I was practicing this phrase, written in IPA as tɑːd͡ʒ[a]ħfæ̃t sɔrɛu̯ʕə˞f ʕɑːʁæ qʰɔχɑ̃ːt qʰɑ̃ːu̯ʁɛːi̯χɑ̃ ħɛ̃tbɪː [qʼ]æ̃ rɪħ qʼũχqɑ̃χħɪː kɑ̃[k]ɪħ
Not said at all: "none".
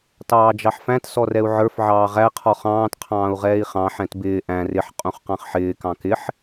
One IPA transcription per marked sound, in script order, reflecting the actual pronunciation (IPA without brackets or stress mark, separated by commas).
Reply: ɑ, ʔ, k